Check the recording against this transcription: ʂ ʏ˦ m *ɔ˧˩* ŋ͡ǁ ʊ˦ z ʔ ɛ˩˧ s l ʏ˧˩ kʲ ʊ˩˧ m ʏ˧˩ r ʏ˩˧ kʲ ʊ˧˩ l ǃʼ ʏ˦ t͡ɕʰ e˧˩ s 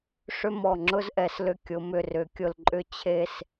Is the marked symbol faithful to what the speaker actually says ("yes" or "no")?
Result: yes